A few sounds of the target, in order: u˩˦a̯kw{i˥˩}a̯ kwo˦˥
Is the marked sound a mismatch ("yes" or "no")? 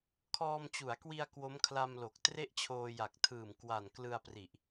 yes